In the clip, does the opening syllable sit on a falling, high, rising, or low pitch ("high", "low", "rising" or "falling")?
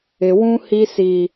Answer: high